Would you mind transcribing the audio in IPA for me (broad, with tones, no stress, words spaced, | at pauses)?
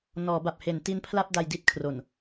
nɔː˩˦ba˨˩p̚he˩˦n ti˦˥npʰla˥˩p̚ da˧jdi˥˩t̚kʰro˨˩n